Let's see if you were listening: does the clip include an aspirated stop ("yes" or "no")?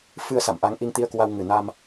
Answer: no